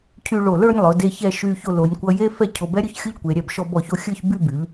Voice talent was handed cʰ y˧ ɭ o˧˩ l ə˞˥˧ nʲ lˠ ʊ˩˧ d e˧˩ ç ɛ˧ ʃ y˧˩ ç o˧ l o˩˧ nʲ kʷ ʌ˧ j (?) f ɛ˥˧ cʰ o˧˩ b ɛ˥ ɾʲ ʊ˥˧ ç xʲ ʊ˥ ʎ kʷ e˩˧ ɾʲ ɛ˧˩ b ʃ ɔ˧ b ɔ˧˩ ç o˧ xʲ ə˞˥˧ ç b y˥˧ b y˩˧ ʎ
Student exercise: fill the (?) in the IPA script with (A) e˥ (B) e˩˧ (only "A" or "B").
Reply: A